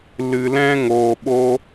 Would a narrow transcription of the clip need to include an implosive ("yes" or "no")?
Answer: yes